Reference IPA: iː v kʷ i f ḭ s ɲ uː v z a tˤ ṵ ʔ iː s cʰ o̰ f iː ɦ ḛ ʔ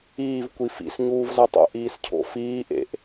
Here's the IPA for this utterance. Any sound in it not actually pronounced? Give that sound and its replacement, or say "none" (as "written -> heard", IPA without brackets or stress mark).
ɦ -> ʔ